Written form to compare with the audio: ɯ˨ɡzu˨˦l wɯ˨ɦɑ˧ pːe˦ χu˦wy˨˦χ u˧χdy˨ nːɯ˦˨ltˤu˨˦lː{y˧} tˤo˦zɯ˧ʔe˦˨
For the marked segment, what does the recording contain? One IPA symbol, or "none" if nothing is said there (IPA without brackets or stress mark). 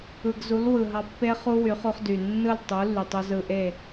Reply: y˨